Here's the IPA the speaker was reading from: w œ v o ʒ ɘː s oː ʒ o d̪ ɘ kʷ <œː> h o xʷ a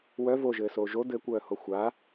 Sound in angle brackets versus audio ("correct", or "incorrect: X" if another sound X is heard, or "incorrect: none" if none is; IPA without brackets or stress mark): correct